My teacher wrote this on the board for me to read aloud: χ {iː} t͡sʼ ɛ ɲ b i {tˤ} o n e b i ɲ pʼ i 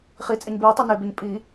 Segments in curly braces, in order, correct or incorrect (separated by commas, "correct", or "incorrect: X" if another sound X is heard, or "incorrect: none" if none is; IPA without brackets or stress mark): incorrect: i, correct